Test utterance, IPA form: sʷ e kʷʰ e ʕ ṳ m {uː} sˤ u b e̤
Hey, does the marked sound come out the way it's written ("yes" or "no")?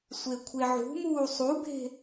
yes